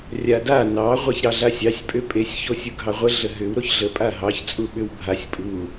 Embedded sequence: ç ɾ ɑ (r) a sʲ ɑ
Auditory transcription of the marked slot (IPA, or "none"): ɮ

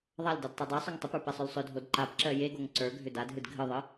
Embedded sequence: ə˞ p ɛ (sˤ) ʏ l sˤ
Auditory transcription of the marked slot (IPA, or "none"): sˤ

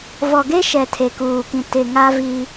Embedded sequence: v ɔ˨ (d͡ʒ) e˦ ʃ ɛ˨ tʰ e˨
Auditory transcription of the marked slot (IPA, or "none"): ɡ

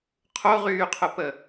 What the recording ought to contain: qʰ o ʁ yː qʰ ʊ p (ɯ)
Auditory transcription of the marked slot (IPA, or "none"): ə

